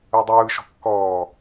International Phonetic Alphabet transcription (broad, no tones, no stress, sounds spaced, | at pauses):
ɯ dˤ ɯː ʃ ɔ̤ kː ɔː